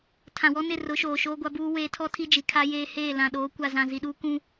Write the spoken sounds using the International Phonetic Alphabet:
tʰã˨wɔ˦ nɪ˦˨rʊ˨˦ ʃoː˨ʃoː˦ɡʷa˦buː˦ weː˦ tʰɔ˦ tʰi˦d͡ʒi˨kʰa˦jeː˦ heː˦˨lã˨ɗoː˨˦ kʷa˨zã˨ zi˨ɗuː˦kũ˦

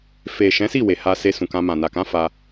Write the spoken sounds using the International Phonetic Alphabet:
fe˨ʃɛ̃˨˦si˦˨ we˨ha˧ se˧sũ˨kã˧mã˨ na˨kã˨˦ fa˧

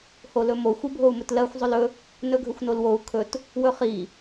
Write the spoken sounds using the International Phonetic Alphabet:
holɵmo xʷibʱou̯mɵtlɜxʷ zˤɵlɵ | nɵɡʱɵxʷnolwou̯ kʰɵt | wɵχi

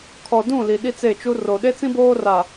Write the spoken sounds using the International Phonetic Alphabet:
kʰɔ˨dũ˦˨ li˨ɗi˦t͡se˦˨t͡ʃu˦ ro˨ ɗe˦t͡sĩ˦boː˦ra˨

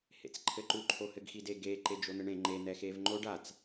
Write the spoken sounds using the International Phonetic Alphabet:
hḛt͡sǃʰɘǃu ǃʰohɘɡxide ɡe ǃed͡ʒon̪ɘɳẽ ŋ͡ǃe n̪ɛxeːvŋ͡ǃoɖ at͡s

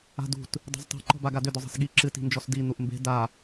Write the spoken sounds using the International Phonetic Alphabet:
a̤dṳt | dˤi̤ztˤe̤ ǃɔ̤baɡadʏ dʏzˤi̤sɠi ǁɨ ti̤nd͡ʒɔsdi n̪uʔmbe̤ da

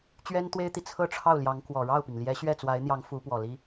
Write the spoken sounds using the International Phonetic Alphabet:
t͡ɕɥɛ˥nt̪we˥ɪ̯t̪i˨ t͡sʰɤ˥ʈ͡ʂʰɑ˥˩ʊ̯ljɑ˧˥ŋ kwɔ˨˩ ɻɑ˥˩ʊ̯pi˩ŋljɛ˧˥ ɕɥɛ˥˩t͡swa˧˥ɪ̯n̪jɑ˧˥ŋ fu˧˥pwɔ˨˩li˥

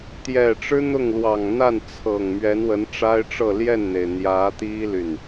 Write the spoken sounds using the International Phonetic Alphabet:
t̪jɛ˨˩ʈ͡ʂɻ̩˥ n̪ʊ˥˩ŋlwɑ˨˩ŋ n̪a˥˩nt͡sʰɤ˨˩ŋ mɥɛ˧˥nwə˧˥nʈ͡ʂa˥ɪ̯ʈ͡ʂɤ˥˧ ljɛ˥˩nn̪e˩ɪ̯n̪jä˧˥t̪i˥ ly˥˩n

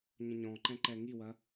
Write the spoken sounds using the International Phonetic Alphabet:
ɲə̃ɲɔ̃ǃɛ̃ ǃɛŋiwɐ

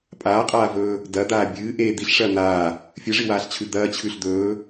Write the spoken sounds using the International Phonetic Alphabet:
pʼaːqʼaːvɵː | dɐd̪aː bʲɨː ʔe d̪iɬʂɐː n̪aː | fʲɨʐiwaːɬt͡ɕʰʉ d̪ɐːt͡ɕʰʉɬ d̪ɵː

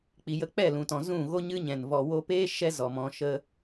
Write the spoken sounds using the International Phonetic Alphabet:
k͡pi˨jə˧k͡pɛ˦˨ lũ˧tɔ̃˧ zũ˦˨ ɣo˦ɲɨ˦ɲɛ̃˨n vɔ˨wo˧peː˦ ʃɛ˦zɔ˨mɔ̃˧ ʃə˦

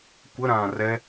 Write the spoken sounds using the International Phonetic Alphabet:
kʷəɾãː rɛ

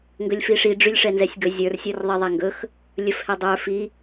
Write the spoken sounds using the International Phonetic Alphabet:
ŋɡɵlʲfiʂi ɖ͡ʐylʲʂɛnzɛsʲɡɵ zʲə˞r sʲə˞rðˤiðˤɛŋɡɵx | lʲɵfhɛdˤə˞ fi

